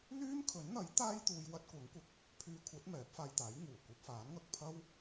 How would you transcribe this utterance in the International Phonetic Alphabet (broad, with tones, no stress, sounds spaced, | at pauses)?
l yː˥ m kʰ ɵ˨˥ n n̪ ɐ˨˥ j t̪ aː˥ j t̪ uː˧ j w ɐ˥ t̚ kʷ ɐ˨˥ ŋ kʷ ɐ˧ k̚ | pʰ yː˧ kʷʰ ɐ˨˥ t̚ m ɛː˨˥ p̚ f aː˧ j t̪ aː˨˥ j ŋ uː˨˩ kʷ ɐ˧ p̚ f aː˨˥ n ŋ ɐ˨ k̚ pʰ ɐ˥ w